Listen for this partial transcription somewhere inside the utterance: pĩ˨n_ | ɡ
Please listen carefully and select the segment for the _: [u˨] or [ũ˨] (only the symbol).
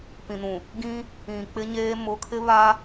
ũ˨